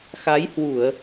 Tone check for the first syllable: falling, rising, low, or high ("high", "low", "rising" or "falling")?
rising